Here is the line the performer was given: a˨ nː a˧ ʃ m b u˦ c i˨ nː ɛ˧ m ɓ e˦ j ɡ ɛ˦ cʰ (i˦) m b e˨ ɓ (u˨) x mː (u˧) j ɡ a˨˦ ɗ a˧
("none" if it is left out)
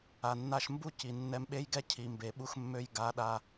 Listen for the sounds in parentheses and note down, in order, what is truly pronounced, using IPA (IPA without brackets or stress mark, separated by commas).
i˨, u˧, ø˧